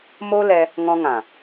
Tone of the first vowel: high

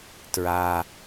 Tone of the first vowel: low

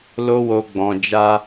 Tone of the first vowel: high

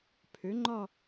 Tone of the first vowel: rising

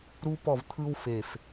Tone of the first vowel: high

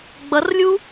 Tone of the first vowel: rising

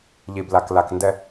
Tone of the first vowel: low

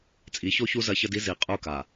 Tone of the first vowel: rising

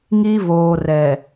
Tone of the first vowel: high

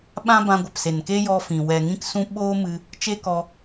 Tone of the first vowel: high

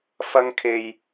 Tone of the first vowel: high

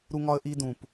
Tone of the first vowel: high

